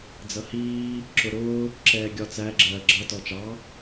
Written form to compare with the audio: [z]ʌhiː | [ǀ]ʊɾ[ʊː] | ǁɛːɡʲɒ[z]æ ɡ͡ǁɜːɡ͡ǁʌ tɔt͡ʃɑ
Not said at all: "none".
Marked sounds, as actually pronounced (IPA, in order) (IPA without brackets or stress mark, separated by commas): d͡z, ǁ, ʊː, t͡s